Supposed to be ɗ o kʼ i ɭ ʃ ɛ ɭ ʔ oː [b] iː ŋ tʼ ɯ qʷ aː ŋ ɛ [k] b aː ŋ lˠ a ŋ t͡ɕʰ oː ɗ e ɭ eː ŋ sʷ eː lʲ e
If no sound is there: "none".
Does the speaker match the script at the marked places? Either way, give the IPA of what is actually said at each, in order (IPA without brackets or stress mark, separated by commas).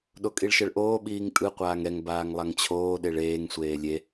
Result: ɓ, ŋ